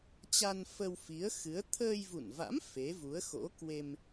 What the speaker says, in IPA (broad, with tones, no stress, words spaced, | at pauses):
t͡ɕa˧n fə˧wfi˨˦ə̯xɨ˨˦ə̯ t̪ʰəː˧jvṵ˧˨nva̰˧˥m fe˨˦vu˨˦ə̯xo̰˧˥kwe˧m